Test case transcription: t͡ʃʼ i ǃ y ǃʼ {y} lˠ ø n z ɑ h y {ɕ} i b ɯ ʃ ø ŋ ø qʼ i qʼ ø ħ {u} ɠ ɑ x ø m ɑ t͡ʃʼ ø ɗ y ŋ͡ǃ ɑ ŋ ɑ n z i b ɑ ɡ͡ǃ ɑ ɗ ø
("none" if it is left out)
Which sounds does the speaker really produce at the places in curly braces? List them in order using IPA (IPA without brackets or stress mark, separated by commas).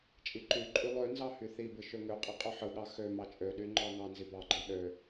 y, θ, ɯ